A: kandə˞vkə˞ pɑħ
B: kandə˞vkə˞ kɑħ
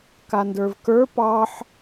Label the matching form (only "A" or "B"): A